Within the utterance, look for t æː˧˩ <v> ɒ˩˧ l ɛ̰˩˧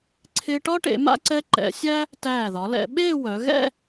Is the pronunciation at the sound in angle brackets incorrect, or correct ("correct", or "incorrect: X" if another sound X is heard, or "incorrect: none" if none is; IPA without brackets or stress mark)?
incorrect: ð